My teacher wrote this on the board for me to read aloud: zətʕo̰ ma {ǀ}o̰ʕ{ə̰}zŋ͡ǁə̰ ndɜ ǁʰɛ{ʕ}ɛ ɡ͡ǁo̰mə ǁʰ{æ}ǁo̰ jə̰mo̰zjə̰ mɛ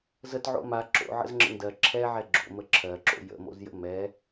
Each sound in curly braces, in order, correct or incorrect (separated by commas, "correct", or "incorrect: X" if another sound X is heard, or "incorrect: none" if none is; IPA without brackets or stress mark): incorrect: ǁ, correct, correct, incorrect: ɜ